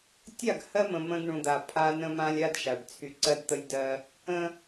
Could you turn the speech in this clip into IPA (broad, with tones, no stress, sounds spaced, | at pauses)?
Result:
tʲ a˦˨ ɡ h ɜ˦ m ə̃˨ m ə̃˦ ɡ ɳ ũ˨ d̪ a˨ pʰ a˦ n ə̃˦ m ã˦ lʲ a˦ d ʃ a˨ ɖ t͡sʰ y˦ ǀ ɜ˦ d t̪ ə˦ lʲ d ɜ˦ | ə̃˦